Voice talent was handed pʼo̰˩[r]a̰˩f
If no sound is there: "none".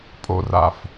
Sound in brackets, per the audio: r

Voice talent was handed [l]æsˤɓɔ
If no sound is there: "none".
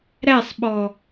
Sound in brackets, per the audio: ɾ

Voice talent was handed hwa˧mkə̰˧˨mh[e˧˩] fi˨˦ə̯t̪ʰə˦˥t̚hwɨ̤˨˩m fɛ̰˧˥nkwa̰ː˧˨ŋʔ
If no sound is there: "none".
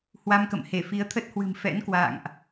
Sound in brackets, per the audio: e˧˩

